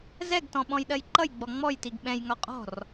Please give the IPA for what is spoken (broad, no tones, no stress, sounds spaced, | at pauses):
z ɛ ɡ t ɔ̃ ɓ ɔ̃ j ɗ ɜ j ǃ ʌ j ɡ͡b ɔ ŋ͡m ɔ j t i ɡ ɓ ɛ̃ j ŋ ɒ qʼ ɔ̤ r